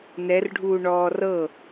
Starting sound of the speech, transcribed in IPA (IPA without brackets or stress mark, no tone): n